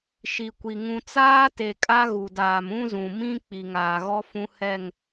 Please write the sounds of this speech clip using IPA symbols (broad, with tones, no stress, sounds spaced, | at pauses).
ʃ i˨ kʷ i˨ ŋ ũ˨ t͡s aː˦ t e˨ kʼ a˦ ɣ u˨ d aː˨ m ũ˦ z ũ˨ m ĩ˦ k͡p i˨ ŋ aː˨ ɣ ɔ˦ f ũ˦ h ɛ˦˨ ŋ